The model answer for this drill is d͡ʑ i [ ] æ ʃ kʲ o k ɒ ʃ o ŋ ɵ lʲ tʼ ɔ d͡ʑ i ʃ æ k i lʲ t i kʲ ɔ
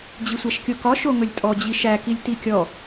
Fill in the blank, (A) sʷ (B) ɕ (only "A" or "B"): A